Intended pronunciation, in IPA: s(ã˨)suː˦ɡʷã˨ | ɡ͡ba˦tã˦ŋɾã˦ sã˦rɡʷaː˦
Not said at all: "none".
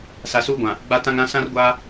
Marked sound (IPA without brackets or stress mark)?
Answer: a˨